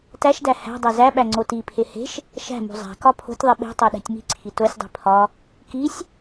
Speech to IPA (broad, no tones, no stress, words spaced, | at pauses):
tæʃdæ hæ̤dˤæ zæɓæ ŋ͡ǀotipʰe he̤ʃ | ʃæ̤mṳ zˤæ̤kɒ pʰo̤tʲðˤi ɓe̤ tˤæɗæ̤tʲmi̤ǀʰi tosʲdˤi̤ pʰɒ | kisʲ